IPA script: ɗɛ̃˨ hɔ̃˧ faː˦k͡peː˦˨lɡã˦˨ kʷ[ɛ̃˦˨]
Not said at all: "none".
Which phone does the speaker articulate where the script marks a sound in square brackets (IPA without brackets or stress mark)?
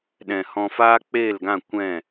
ɛ̃˦˨